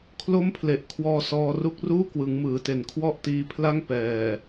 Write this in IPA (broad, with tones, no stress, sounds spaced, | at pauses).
kʰ l o˥˩ m pʰ l e˨˩ ʔ kʰ w ɔː˧ s ɔː˧ r u˥˩ k̚ r uː˥˩ k w ɯ˩˦ ŋ m ɯː˩˦ t e˨˩ n kʰ w ɔ˥˩ ʔ t iː˧ pʰ l a˥˩ ŋ p ɛː˨˩